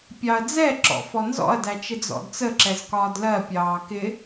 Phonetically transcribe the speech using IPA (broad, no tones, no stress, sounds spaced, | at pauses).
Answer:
pʲ ɑ ɐ̯ d͡z ɛ ǁ ɔ̰ f ɔ n z ɔ̰ ɐ̯ d æ t͡ʃ ɪ d͡z ɔ̰ d t͡s ə ǁ ɛ z k ɒː d l ɜ pʲ ɑː k ɪ